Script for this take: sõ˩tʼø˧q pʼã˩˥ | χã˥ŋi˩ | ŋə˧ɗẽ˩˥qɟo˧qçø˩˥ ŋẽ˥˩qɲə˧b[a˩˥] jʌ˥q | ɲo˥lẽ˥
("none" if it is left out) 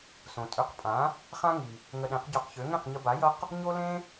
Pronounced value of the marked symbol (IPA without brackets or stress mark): a˩˥